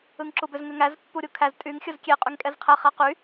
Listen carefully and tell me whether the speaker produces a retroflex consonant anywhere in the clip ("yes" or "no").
no